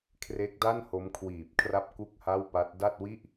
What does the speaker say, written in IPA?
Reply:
kʰ r e˦˥ k̚ d a˥˩ n h o˦˥ m kʰ w iː˨˩ p̚ kʰ r a˥˩ p̚ k u˥˩ k̚ h a˥˩ w p a˦˥ t̚ d a˥˩ t̚ w i˥˩ ʔ

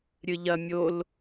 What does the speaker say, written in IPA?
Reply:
ɾʲ ɨ ʎ ɐ mʲ o l

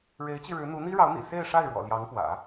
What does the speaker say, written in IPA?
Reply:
ɻ e˧˥ ɪ̯ t͡ɕ i˧ ɻ ɻ̩˧˥ n̪ u˧˥ n̪ i˥ ɻ ɑ˧˥ ʊ̯ n̪ ḭ˨˩ s e˥˧ ɪ̯ ʂ a˥˩ ɪ̯ ɻ w ɔ̰˨˩ l j ɑ˧˥ ŋ p w ä̰˨˩˦

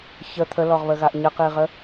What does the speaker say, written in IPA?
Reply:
ç ə t̪ʰ ə l ɔ ʁ β ə ɣ a ʔ ɲ ə q i ʁ ə

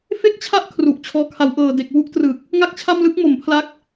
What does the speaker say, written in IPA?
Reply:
f e˥˩ k̚ t͡ɕʰ a˥˩ ʔ kʰ r u˨˩ ʔ t͡ɕʰ ɔː˩˦ kʰ a˩˦ w ʔ ɤː˨˩ d e˨˩ k̚ w u˥˩ ʔ t r ɯ˨˩ k̚ | ŋ a˥˩ k̚ t͡ɕʰ a˥˩ m l ɯ˦˥ k̚ m o˩˦ m pʰ l a˦˥ k̚

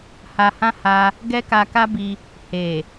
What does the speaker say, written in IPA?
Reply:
h a˧ h ã˦ h a˧ | ɡ ɛ˦ k a˧ k a˦ b i˧ | h e˨

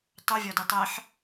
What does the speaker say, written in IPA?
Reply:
tˤ u vʲ ɒ d i tˤ e ħ

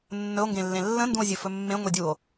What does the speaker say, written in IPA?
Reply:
nː ɵ o̯ ŋ ɡ ẽ lː ẽ lː ə̃ n d ũ o̯ zʲ ɵ f ɵ mː ẽ ŋʷ e dʲ u o̯

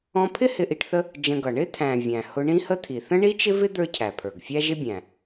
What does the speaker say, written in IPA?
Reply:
ɔ̃˧ pʰ ɪ˥ h ɪ˧ ʔ i˧ ʈ θ ə˥ | d͡ʒ ə̃˧ ɡ ʌ˩ ɳ ɪ˥ t̪ʰ æ̃˩ vʲ æ̃˩ h ʊ˧ ɳ ĩ˥ h ə˥ t̪ʰ i˩ θ ə̃˥ ɳ i˥ t͡ʃ ɪ˥ v ɪ˥ d̪ ə˞˥ cʰ æ˩ pʰ ə˞˩ ɡ fʲ æ˥ ʒ ɪ˥ bʲ æ̃˩

